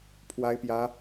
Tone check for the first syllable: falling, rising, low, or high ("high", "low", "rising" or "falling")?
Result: high